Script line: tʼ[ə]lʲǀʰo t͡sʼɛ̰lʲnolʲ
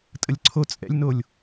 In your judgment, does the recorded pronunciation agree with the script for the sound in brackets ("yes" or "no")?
yes